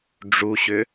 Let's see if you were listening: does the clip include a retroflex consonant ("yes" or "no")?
yes